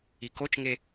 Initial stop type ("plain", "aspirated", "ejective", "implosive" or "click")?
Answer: plain